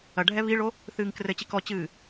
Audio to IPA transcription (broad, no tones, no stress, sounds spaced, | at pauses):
ɐ ɖʱ ɛ β i ɭ o | θ ɨː ŋ k r ɘ t͡ɕ i k ɔ t͡ɕ ɨː